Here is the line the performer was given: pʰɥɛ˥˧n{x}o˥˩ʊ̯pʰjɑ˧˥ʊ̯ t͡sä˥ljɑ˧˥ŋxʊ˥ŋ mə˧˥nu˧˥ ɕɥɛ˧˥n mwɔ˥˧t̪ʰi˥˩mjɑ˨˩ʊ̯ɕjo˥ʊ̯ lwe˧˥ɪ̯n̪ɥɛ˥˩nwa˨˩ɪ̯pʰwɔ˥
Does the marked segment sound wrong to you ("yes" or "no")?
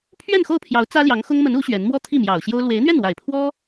no